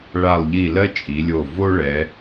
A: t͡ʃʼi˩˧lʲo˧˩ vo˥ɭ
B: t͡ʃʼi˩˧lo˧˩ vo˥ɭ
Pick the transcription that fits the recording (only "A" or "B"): A